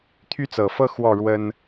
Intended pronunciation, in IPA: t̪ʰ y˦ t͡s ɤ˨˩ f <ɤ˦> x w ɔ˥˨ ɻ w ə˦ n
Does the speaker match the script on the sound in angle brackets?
yes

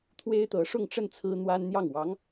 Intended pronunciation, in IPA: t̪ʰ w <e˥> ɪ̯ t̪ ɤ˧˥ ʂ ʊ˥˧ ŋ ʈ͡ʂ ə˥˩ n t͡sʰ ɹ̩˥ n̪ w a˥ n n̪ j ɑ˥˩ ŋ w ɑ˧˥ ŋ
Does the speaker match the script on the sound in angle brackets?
yes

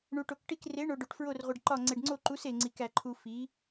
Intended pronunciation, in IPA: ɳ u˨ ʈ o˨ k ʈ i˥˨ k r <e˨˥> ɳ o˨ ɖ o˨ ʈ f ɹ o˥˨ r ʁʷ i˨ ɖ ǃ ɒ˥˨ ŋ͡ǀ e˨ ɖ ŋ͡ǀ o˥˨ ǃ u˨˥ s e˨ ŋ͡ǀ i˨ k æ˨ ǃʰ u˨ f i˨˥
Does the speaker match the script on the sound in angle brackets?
yes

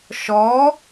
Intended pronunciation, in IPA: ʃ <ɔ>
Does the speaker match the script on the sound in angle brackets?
yes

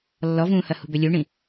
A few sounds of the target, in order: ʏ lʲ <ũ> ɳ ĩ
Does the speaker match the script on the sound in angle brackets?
no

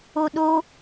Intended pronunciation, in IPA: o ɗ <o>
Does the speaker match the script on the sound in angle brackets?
yes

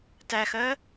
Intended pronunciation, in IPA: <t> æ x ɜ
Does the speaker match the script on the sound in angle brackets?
yes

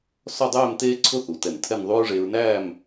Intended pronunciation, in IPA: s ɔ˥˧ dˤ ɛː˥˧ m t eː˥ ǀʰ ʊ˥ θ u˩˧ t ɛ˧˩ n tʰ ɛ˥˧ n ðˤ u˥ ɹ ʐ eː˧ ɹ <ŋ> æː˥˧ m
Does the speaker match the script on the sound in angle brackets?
no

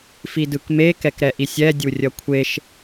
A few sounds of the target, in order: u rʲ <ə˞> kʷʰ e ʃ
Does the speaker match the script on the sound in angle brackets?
no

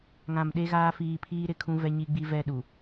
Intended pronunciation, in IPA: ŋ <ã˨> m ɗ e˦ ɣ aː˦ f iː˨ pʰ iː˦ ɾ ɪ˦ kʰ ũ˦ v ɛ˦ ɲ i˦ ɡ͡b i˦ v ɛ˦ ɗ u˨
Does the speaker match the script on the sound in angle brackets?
yes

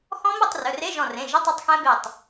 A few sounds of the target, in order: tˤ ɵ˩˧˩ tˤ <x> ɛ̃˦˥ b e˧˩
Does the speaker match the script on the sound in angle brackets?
yes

